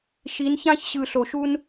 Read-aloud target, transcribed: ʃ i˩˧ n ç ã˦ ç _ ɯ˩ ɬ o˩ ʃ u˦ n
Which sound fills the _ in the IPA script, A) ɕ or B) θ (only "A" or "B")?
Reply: A